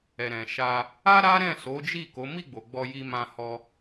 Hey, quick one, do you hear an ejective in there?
no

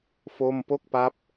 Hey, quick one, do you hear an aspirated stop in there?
no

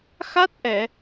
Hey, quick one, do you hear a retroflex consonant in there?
no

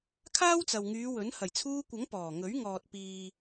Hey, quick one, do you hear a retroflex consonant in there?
no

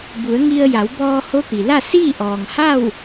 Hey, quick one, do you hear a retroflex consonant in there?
no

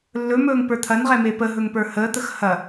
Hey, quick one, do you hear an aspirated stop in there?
yes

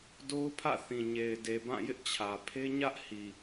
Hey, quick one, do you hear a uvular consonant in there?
no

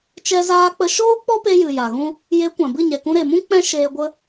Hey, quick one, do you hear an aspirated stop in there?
no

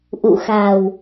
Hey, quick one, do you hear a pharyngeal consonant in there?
no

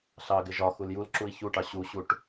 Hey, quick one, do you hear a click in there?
yes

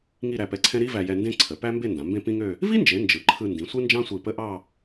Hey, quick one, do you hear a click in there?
yes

